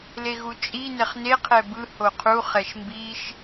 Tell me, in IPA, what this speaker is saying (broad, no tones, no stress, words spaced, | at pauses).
leɣut͡ʃʼi nɛχne qʰɛbɯ hoqʰu χɛʃmbiʃ